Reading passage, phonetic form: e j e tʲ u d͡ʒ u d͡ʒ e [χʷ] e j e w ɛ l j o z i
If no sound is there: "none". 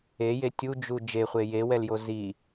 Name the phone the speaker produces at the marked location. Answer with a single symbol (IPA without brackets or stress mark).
χʷ